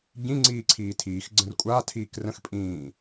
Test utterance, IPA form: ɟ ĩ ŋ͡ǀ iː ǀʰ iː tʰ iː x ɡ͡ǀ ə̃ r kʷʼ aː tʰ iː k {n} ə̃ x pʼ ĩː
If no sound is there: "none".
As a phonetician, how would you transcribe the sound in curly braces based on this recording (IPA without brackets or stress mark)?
r